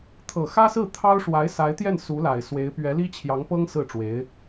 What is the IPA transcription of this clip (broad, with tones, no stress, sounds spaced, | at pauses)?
t̪ʰ ɤ˨˩ x ä˥ s ɹ̩˥˩ t̪ʰ ɑ˥ ʊ̯ ʂ w a˧˥ ɪ̯ s a˧˥ ɪ̯ t̪ j ɛ˥˩ n s u˧˥ l a˨˩ ɪ̯ s w e˧˥ ɪ̯ p ɥ ɛ˧˥ l i˥ t͡ɕʰ j ɑ˧˥ ŋ p ɤ˥ ŋ s ɹ̩˥˩ ʈ͡ʂ w e˧˥ ɪ̯